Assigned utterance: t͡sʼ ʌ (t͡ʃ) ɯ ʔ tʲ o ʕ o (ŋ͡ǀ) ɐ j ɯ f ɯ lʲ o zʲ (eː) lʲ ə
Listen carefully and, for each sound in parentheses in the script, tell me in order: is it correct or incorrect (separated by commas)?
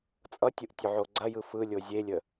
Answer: incorrect, incorrect, incorrect